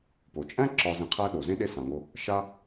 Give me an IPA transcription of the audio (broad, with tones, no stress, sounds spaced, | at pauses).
p o˩ t͡ʃʼ æ̃˥ ǁ ɒ˨ z ẽ˨ qʰ æ˦ ɗ o˩ z ẽ˦ ɗ e˦ s ã˩ ŋ o˨ | ʃ a˦